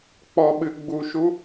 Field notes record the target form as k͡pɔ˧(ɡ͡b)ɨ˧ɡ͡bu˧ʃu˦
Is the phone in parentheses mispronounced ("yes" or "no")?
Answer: yes